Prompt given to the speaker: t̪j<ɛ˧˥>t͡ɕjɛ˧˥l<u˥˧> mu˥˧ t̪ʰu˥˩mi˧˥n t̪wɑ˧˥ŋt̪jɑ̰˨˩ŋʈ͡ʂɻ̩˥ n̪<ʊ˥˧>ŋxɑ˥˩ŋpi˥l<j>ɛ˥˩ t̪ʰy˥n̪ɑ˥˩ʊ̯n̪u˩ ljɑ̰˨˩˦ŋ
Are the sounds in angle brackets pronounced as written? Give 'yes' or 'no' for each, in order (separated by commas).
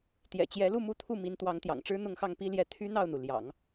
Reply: no, yes, yes, yes